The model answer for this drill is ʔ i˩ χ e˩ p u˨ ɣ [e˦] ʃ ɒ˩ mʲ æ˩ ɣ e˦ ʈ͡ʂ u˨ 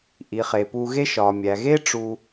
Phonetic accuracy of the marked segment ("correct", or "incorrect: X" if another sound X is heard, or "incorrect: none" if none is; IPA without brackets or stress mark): correct